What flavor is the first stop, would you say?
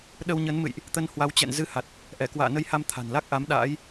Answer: implosive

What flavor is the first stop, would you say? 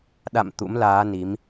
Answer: implosive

